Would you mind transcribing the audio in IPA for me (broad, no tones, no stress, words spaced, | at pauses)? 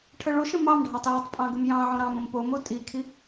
ʈʰəɭoʃə̃ mɑmɖʱɑtˤ jətˤpʼɑ̃ ɡəmjɑ̃ʕõ ɾɑ̃mə̃m pomo tʼikʰi